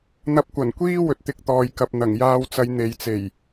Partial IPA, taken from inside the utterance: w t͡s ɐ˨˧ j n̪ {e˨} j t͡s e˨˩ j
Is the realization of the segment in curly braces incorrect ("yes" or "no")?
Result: no